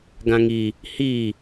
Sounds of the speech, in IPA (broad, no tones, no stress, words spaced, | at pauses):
ɡãŋi | hi